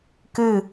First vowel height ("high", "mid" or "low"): high